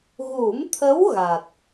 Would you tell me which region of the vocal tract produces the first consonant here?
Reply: velum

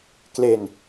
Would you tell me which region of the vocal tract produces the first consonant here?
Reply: velum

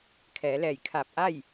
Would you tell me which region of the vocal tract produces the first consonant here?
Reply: velum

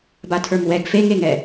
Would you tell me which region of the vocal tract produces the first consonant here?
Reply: lips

